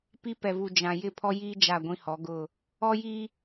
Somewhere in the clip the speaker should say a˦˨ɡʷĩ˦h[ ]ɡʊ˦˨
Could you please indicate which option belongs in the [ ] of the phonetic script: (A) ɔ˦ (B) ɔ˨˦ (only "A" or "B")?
B